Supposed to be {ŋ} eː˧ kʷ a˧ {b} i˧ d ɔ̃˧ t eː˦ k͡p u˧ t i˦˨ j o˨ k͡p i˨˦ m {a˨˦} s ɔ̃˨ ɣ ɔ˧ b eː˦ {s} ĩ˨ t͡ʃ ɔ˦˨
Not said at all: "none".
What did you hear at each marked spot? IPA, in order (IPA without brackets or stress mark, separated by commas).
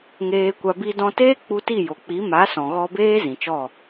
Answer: ŋ, b, a˨˦, z